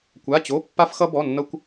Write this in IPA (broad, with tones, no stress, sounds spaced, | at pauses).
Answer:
kʷ a˧˥˧ t͡ɕ o˧˥˧ pː a˥ f x ʌ˥ b ɔ˧˥˧ nː ʌ˥ kʷ